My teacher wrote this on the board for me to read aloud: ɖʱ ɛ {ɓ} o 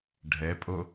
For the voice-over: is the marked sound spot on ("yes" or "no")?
no